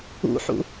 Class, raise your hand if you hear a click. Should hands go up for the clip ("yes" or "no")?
no